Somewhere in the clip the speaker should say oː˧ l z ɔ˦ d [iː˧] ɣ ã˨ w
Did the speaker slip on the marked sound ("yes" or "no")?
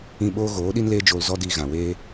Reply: no